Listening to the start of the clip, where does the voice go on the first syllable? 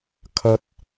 high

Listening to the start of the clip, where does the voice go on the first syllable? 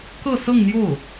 falling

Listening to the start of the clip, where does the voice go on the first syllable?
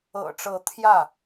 low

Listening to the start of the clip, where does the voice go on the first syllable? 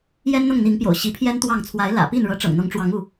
high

